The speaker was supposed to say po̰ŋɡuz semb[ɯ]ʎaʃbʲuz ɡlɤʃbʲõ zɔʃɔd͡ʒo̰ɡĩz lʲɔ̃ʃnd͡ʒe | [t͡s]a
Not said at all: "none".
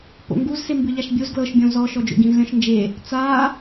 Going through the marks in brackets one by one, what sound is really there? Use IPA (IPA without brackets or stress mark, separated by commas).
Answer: ɯ, t͡s